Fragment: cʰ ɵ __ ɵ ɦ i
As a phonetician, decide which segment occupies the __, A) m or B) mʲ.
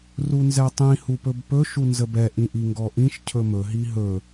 A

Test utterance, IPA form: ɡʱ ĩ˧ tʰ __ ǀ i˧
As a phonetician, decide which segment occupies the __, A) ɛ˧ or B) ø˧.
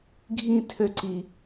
B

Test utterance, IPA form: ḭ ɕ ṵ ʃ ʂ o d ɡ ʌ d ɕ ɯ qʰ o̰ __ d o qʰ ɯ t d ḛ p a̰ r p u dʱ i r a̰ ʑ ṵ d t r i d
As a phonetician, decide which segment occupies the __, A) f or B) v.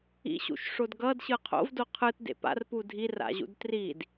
B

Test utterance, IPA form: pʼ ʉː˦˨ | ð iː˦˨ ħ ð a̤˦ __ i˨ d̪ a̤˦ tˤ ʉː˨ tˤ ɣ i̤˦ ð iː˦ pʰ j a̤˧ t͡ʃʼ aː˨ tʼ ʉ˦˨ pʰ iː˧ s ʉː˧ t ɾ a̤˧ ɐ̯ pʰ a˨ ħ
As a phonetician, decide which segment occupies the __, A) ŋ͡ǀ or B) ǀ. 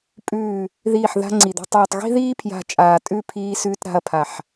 A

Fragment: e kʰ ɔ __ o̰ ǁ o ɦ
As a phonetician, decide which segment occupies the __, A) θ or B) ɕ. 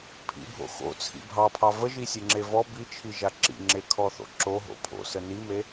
A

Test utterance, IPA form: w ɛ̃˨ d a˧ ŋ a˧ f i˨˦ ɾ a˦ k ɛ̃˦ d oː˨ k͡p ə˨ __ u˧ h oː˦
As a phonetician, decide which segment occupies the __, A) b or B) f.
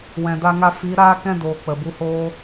A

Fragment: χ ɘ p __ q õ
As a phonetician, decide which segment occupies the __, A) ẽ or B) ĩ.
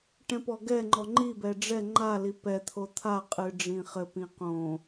B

